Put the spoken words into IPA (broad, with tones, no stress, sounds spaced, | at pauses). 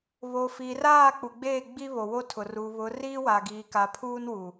β o˨ f i˨ r aː˦˨ k͡p u˨ ɡ͡b e˦˨ ɡ͡b i˦ β o˨ w o˦ tʰ ʊ˨ r uː˨ β ʊ˨˦ r iː˦ w a˨ ɡ iː˨ k a˨ pʰ uː˦ n w u˨